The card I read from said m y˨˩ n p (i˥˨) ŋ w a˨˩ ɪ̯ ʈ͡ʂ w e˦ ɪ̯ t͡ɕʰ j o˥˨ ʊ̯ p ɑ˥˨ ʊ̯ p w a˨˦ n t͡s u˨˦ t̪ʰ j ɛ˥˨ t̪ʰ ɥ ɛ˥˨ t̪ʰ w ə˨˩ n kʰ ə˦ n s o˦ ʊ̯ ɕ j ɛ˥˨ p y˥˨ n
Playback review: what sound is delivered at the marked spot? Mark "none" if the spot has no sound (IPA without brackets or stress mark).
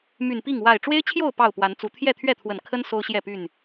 i˥˨